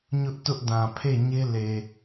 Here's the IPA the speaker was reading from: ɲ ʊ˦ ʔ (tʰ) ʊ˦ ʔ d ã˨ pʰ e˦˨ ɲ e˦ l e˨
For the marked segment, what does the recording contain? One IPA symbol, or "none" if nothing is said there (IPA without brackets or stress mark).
t